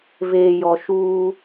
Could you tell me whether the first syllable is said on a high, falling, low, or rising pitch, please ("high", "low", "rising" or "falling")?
low